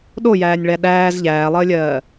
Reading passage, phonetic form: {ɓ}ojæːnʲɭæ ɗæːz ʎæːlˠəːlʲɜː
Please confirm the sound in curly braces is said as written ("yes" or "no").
no